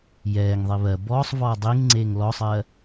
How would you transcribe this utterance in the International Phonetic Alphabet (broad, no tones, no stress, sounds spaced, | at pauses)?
j ɛː ŋ ðˤ i β ɜ b ɔː sˤ v ɔː dˤ i ŋ ŋ͡ǀ eː ŋ l ɔ sˤ ɜ